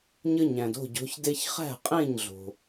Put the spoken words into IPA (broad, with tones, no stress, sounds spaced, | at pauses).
ɲ ə˦ ɲ æ̃˩ d o̤˥˩ ɟ o̤˨˦ ç d e˦ ç χ æ̤˥˩ qʼ ẽ˥˩ ɲ ɮ o̤˩